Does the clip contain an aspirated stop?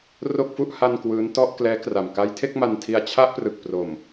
yes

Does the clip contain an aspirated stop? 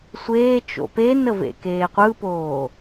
no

